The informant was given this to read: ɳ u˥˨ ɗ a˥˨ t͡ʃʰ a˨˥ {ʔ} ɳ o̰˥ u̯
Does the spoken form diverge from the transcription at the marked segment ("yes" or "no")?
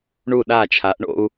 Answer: no